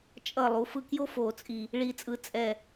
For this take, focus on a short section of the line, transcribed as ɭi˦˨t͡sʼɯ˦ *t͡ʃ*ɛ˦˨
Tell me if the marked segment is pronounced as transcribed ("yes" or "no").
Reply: no